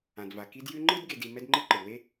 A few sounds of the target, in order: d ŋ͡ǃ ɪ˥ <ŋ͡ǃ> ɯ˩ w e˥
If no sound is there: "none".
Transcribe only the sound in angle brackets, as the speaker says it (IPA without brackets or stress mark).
ǃ